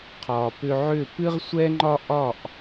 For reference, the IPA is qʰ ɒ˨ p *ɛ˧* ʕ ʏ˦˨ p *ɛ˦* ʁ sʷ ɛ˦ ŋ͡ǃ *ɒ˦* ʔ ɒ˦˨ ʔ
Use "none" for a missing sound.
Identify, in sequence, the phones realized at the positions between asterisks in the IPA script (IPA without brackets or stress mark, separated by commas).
ʏ˧, ɨ˦, ɒ˦